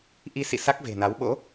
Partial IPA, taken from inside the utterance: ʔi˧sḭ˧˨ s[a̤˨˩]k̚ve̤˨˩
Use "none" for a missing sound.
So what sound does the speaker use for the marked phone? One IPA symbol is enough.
a˦˥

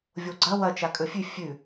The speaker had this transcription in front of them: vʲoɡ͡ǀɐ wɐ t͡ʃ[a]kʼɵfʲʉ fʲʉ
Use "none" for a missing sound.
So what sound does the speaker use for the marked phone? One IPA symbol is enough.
a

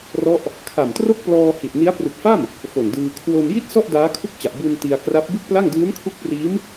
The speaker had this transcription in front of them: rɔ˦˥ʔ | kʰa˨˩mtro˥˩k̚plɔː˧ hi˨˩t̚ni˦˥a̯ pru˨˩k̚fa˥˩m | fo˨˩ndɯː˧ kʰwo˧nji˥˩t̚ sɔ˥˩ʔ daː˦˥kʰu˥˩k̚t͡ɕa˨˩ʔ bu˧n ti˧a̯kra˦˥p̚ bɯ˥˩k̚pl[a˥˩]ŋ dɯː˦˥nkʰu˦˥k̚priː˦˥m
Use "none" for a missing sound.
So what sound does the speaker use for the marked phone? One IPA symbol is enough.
a˥˩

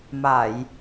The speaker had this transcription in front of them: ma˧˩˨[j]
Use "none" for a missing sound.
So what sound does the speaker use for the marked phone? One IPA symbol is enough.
j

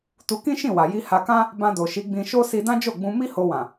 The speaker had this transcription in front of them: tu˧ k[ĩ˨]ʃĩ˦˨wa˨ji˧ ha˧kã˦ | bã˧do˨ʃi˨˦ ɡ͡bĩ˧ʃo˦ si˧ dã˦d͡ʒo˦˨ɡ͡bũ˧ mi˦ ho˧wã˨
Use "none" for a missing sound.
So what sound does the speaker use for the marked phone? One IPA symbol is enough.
ĩ˦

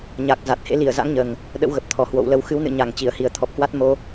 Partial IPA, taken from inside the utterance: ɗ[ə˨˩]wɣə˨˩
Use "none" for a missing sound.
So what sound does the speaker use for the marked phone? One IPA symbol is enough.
ə̰˧˥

